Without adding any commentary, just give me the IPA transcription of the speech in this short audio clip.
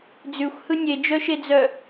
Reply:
d͡z ʉ xʷ h ɯ nʲ e d͡ʒ œ ʃ e d͡z œ

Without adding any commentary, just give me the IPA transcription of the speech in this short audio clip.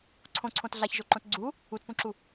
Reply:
ǀʰ õ ǀʰ õ t ɮ a ç ʒ o ǃ õ t ɡ͡ǀ u | u t p ũ ǁ u

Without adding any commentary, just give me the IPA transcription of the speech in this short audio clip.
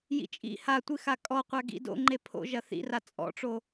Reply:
j ḭ t͡ʃʼ ḭ h a tʷ ɨ x a kʼ ɔ qʷ a ɡ ḭ d o̰ ŋ͡ǃ e pʰ o̰ ʒ ɐ θ ḭ r a t͡sʼ ɔ̰ ʈ͡ʂ o

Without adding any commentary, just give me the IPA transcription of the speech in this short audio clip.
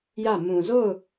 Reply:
j ä˦˨ m ũ˨ z o˦˨ ʊ̯

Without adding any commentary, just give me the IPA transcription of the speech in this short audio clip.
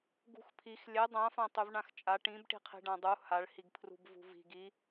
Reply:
ɡ ṳ x pʰ i x lʲ ɛ dˤ ã f ã tˤ y v ɳ ã x t͡ʃʼ a ʈ ĩ b ʈ i̤ qʰ i̤ ɖ ã dˤ u h a ɭ h i ɡ pʰ r ṳ b v ṳ v i̤ ɡ i

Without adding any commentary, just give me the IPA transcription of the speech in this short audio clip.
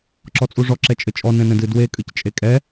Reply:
ǁ ɔ t͡sʼ u ʐ ɔ ǁ ɛ t͡ʃʼ ɘ t͡ʃʼ ɔ n ɛ̃ n ɛ̃ d ɨ d w e kʼ ɨ c t͡ʃʼ e kʼ ɛ

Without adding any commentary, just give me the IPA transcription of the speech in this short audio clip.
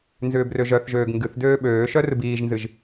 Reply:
n z ʏː b r ø ʒ œ θ ʒ øː ɡ ŋ ɡ ɨ θ d øː ɓ øː ʃ œ r ɨ b iː ʒ n z ɨ ʒ

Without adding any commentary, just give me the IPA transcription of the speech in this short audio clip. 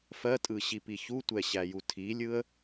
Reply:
f ɜ tʼ ɯ ɕ i p i ç u tʷ ɛ ɕ æ j u tʰ i lʲ ɯ ə̯

